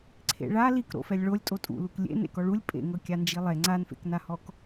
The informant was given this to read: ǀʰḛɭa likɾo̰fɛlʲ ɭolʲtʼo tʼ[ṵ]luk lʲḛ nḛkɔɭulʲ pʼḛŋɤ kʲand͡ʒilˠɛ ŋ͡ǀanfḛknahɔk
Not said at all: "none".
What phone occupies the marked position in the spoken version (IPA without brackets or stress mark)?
ṵ